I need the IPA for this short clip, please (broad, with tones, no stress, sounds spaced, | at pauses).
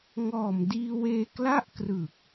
ŋ ɔː˨˩ m d iː˧ w eː˧ k l a˥˩ ʔ k r ɯ˨˩ k̚